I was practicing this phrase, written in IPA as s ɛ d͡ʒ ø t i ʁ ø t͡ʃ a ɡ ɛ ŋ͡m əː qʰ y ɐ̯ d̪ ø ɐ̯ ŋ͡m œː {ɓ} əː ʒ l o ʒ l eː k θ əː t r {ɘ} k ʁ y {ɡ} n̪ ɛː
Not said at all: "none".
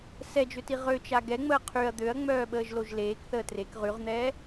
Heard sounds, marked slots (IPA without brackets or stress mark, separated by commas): ɓ, e, ʁ